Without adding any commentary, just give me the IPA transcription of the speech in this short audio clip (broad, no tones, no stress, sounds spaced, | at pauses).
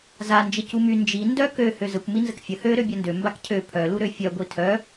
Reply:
z a n d͡ʒ ə c u m y n d͡ʒ i n d œ k ø h ø z ə kʷ m i n z ə k fʲ ə h ø ɾ ø bʲ œ n d ø m b a k cʰ ø pʰ œ l u ɾ ø fʲ œ ɡʷ i tʰ œ